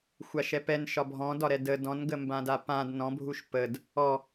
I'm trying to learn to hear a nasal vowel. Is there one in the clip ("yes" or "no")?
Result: yes